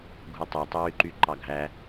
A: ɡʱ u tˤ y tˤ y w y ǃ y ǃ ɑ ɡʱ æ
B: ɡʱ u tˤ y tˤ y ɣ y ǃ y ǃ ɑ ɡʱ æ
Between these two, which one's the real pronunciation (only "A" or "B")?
A